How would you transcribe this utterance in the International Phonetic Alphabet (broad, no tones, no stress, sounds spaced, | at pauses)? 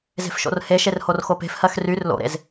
z e̤ f ʃ o̰ r h e ʃ e r h o r x o p e̤ f h ɜ x r y r l o̰ ɾ ḛ z